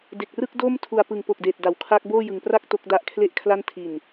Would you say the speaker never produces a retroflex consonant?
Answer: yes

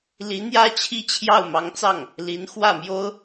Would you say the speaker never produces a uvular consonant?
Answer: yes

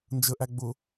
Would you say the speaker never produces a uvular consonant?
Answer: yes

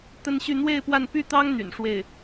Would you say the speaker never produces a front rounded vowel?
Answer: no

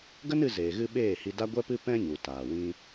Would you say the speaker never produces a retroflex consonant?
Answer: yes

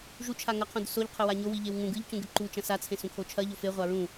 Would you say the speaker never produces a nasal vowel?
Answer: no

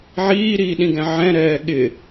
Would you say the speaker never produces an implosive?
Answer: no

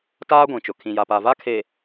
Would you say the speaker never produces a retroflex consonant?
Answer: yes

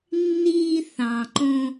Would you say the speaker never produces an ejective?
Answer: yes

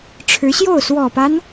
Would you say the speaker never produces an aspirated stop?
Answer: no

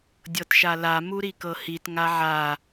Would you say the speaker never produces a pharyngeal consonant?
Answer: no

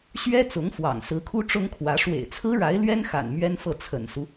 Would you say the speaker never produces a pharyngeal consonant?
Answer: yes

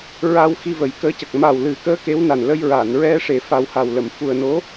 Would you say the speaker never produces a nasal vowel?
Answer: yes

